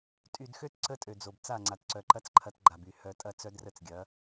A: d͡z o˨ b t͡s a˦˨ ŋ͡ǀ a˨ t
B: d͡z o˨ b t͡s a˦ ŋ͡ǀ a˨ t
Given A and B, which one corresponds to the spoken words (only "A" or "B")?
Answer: A